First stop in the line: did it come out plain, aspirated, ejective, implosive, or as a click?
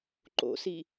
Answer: click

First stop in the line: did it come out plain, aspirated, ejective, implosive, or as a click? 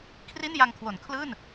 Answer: aspirated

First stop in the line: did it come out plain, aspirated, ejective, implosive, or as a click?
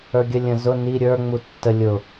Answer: plain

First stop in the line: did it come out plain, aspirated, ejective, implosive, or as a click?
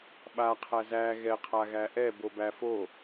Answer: implosive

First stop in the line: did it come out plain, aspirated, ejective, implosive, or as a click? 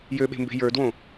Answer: implosive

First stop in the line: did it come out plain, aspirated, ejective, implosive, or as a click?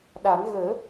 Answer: implosive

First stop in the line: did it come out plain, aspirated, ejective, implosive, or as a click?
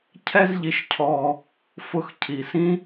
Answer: aspirated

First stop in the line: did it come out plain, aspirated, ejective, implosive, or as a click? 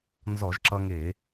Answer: click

